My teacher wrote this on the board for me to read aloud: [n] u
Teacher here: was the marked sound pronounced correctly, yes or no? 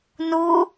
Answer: yes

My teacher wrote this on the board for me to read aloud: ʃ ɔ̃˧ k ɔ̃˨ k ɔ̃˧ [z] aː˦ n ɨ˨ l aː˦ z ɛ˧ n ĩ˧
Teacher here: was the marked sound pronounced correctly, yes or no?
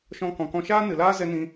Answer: no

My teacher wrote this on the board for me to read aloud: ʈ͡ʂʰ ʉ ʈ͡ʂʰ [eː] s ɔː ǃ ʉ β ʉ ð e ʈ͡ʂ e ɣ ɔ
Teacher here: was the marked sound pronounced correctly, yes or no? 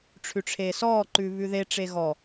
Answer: yes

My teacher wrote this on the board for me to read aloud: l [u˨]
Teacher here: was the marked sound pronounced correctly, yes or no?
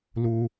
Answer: yes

